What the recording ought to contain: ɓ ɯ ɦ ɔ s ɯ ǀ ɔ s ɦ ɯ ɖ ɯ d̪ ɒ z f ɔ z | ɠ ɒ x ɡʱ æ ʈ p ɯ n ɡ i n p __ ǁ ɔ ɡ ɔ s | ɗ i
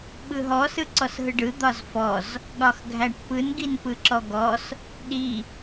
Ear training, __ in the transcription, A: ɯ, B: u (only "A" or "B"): A